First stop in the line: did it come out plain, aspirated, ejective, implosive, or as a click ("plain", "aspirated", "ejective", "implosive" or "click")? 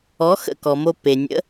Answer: plain